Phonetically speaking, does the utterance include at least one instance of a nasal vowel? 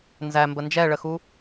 no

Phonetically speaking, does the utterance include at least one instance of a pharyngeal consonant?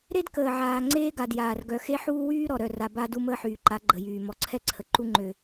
yes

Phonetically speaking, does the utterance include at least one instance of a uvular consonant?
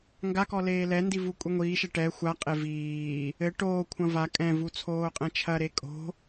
yes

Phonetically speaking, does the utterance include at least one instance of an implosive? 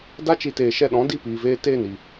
yes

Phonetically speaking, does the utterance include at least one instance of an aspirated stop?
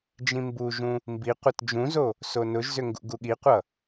no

